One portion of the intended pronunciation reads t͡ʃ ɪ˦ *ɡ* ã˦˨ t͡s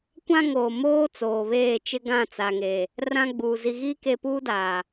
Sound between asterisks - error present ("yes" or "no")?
no